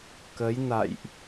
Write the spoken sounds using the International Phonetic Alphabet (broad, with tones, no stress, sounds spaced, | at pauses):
k ə˨˦ j n a̰˧˨ j ʔ